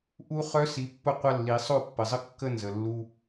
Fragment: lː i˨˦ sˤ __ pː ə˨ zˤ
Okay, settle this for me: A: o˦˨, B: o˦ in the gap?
A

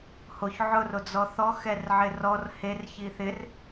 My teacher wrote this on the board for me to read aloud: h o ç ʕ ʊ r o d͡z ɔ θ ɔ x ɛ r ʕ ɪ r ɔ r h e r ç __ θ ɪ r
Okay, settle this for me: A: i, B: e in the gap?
A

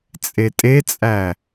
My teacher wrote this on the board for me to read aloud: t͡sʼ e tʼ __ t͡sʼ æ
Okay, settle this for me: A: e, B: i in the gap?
A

